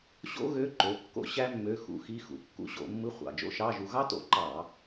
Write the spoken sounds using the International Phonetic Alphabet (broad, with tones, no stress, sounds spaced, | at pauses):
ɕ o̰˥ ɣ ø˧˥˧ ǃ ø˩˧˩ kː o̰˥ ɕ æ˥ mː ø˧˥˧ x ṵ˧˥˧ x i˧˥˧ x ṵ˩˧˩ kː ṵ˧˥ ɕ o̰˧˩˧ mː ɯ˧˥˧ χʷ ɑ̰˩˧˩ d͡ʒ o̰˥ ʃ ɑ˧˥˧ ʒ u˧ ɣ ɑ˥ t o̰˧˩˧ ǃ ɑ˧˩˧